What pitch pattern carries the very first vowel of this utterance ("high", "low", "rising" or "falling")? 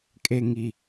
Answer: low